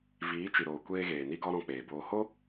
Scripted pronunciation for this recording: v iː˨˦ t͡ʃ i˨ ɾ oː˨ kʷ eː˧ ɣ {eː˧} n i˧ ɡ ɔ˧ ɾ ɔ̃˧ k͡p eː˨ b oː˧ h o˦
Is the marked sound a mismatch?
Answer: yes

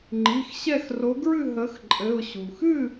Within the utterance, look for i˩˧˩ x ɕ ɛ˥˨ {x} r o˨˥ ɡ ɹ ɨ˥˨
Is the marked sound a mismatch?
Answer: no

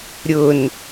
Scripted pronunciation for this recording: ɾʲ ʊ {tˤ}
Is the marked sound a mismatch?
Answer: yes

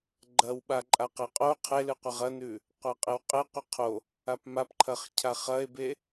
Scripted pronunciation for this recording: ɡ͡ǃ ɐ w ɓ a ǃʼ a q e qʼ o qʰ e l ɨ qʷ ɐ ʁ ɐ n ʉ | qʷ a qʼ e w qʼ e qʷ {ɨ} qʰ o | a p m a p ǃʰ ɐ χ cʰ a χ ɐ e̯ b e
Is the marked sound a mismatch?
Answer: no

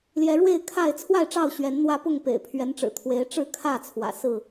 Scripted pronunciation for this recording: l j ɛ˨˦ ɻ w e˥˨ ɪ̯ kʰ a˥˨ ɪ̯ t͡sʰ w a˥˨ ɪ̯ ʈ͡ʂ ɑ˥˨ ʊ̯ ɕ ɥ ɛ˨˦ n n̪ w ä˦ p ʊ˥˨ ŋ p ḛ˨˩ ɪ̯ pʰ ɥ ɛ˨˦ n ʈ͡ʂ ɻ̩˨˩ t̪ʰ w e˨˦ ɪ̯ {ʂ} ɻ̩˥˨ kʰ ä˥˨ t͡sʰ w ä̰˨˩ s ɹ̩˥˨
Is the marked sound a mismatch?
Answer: yes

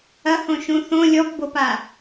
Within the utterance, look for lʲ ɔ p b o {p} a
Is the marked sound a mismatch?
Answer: no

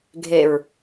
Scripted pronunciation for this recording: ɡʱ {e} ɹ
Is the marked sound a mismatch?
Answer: no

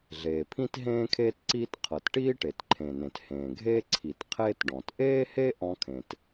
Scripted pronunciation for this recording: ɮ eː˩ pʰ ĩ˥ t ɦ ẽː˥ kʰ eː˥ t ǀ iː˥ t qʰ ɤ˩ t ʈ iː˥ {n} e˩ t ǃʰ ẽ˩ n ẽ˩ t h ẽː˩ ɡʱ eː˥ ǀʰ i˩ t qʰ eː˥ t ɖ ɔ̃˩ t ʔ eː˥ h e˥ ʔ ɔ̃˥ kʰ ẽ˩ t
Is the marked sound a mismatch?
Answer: yes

